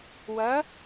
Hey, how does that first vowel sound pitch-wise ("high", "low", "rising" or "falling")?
rising